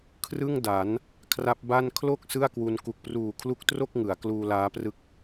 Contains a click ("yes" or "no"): no